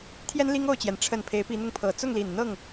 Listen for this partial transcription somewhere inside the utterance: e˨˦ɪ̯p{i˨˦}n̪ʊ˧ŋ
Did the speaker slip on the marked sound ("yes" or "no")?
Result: no